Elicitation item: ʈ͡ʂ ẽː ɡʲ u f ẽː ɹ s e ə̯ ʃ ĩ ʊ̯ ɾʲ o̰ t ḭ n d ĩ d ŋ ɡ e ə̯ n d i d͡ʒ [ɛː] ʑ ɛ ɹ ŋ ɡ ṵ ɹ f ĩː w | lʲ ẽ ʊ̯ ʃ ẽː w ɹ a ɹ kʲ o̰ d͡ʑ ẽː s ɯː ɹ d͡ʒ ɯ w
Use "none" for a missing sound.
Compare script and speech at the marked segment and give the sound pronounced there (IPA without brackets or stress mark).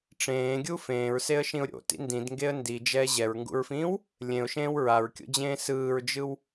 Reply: ɛː